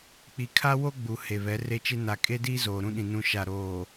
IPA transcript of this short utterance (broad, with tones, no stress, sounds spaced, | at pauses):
k͡p i˨ kʰ a˦ w o˦ ɡ͡b u˨ h e˨ β ɛ˨˦ r e˦ t͡ʃ e˦ n a˨ kʼ e˦ d iː˦ z oː˨ ɾ ũ˦ ɗ ĩ˨ n ũ˨ ʃ a˨ ɾ oː˨